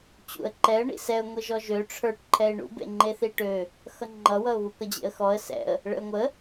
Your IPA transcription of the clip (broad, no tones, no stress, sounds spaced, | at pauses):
t͡ɕ ṵ ə̯ ǃ ɛ ə̯ ɳ ḭ s ɛ ʊ̯ ŋʷ i ʒ ɔ ʒ ø ʈ͡ʂʰ ə˞ ʈ ǃʰ ɛ ɪ̯ ɳ ṵ b ḛ ŋ͡ǃ e θ i ʈ ø | x ʌ ŋ͡ǃ ʌ w ʌ ʊ̯ β u k ʌ d͡ʑ ḛ ə̯ x ɔ ə̯ s ɛ̰ ə̯ | ɭ ə̰ ʊ̯ ŋʷ ə